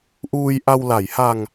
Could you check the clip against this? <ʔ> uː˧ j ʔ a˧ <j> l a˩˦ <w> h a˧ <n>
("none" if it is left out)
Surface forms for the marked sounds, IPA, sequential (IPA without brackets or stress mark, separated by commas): ʔ, w, j, ŋ